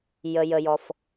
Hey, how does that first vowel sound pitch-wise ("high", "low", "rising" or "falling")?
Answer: low